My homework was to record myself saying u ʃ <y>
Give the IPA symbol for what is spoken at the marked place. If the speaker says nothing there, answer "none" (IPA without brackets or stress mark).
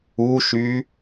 y